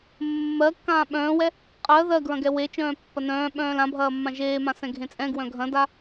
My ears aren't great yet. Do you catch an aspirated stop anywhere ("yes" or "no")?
no